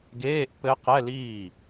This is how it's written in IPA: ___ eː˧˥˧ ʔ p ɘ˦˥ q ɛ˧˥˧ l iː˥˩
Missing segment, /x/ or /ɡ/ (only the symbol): ɡ